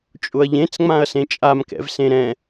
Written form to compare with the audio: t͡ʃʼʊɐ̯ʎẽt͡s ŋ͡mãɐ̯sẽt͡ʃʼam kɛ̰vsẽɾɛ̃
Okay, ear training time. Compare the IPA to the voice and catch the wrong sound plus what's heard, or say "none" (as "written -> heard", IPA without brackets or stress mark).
none